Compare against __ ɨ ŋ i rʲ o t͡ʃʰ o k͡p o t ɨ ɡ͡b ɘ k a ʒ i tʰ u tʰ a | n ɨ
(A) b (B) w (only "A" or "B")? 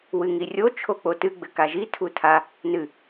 B